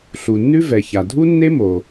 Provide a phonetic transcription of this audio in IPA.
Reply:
ɬ u˩ nː ʉ˥ v ɛ˩ ç a˩ dʱ u˥ nː e˥ m o˩

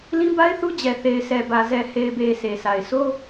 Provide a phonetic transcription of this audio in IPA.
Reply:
l ĩ˦ b a˦ ɪ̯ θ u˦ d͡ʑ ɛ˨ θ e˨ ɪ̯ sʰ ɛ˨ b ä˨ z ɛ˨ h e˨ ɪ̯ b e˨ s e˨ sʰ a˨ ɪ̯ sʰ o˦

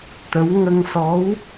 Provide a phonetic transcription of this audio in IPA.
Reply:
t̪ ə˧˥ w ŋ ə˧ ŋ s ɔ˧˥ w

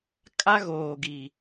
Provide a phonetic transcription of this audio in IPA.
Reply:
kʼ a˦ ɣ oː˨ ɡ i˨

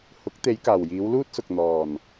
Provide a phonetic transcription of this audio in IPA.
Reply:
h ʊ˨˥ k̚ t̪ e˨˧ j k aː˨˩ w j iː˨˧ w l uː˥ t̚ s ʊ˨ k̚ n̪ ɔː˨˩ n

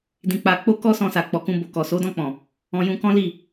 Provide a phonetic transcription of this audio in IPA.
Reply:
d ĩ˧ k͡p a˧ k͡p o˦ k ɔ˦ s ɔ̃˧ s a˨ k͡p ɔ˨ k ũ˧ b o˨ k ɔ˨ s o˨˦ d ɔ̃˦˨ k͡p ɔ̃˨ | ɔ̃˧ j ũ˧ k ɔ̃˦ l i˦˨

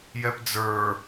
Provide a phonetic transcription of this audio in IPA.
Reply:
j ɛ p d͡z ə˞

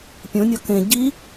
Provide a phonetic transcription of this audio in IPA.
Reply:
pʲ õ nʲ ɒ k ẽ ɟ i

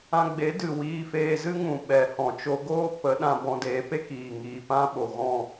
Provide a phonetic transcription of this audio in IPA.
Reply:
ã˧ ɡ͡b e˨˦ d ɨ˨ w iː˧ f eː˧ z ɨ˦ ŋ ũ˨ ɓ ɛ˨ h ɔ̃˨ t͡ʃ o˧ ɡ oː˦ p ə˨˦ ɗ ã˧ b ɔ̃˧ d eː˨˦ p e˦ k iː˨ ŋ iː˨ p ã˦ ɓ o˨ ɣ ɔ̃˦˨

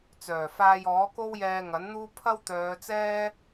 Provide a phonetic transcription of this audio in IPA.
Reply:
t͡s œː˨˩ f aː˧ j ɔː˨˥ k o˥ w j ɛː˧ ŋ ɐ˨˥ n n̪ uː˥ pʰ ɐ˥ w t̪ œː˨˧ t͡s ɛː˥

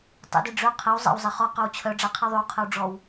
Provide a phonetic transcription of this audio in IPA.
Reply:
tˤ ḛ d i ɖ͡ʐ ø qʰ e w zˤ ɛ̰ w zˤ e χ ɔ q œ w t͡ɕʰ œ ɖ͡ʐ a qʰ i ðˤ y w qʰ ə w ɖ͡ʐ ɔ w

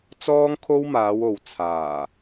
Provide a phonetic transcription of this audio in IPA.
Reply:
t͡s ɔː˥ ŋ kʰ o˥ w m aː˨˧ w o˨ w t͡sʰ aː˨˩

